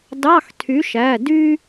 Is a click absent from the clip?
yes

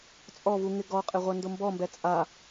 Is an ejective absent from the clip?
no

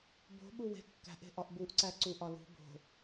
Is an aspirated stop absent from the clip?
yes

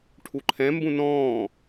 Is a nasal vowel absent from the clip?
no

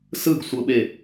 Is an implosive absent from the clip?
no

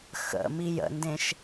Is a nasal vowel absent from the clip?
no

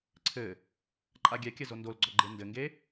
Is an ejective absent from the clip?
no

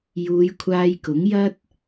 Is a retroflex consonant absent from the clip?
yes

